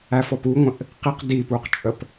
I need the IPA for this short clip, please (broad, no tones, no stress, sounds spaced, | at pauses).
æ f ɔ p u ŋʷ ə̃ ʔ | q i q d iː p uː q t͡ʃʼ ə p